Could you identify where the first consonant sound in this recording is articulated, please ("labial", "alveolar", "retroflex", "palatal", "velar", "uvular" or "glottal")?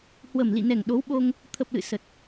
glottal